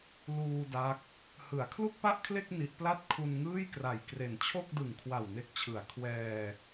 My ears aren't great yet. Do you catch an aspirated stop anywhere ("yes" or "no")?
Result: yes